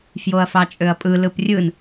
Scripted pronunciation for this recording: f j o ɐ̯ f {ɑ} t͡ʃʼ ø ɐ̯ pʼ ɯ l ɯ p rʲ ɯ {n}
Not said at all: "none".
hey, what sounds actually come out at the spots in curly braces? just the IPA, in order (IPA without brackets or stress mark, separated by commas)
ɑ, n